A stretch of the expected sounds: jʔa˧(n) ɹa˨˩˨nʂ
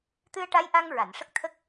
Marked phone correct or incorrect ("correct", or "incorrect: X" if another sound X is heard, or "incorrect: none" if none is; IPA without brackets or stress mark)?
incorrect: ŋ